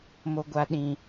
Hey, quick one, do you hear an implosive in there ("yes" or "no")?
yes